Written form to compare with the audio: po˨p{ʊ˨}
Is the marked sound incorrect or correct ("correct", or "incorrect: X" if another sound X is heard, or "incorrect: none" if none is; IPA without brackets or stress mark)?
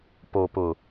correct